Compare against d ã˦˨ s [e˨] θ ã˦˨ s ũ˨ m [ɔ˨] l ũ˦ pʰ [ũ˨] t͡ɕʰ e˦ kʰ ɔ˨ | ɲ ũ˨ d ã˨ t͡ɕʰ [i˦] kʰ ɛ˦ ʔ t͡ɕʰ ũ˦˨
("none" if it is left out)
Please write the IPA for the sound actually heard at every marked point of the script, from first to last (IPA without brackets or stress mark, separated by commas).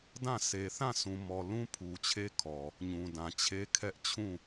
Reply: e˨, ɔ˨, u˨, e˦